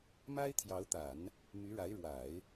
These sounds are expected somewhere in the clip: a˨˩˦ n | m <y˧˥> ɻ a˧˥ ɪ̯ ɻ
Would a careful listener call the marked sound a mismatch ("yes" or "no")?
no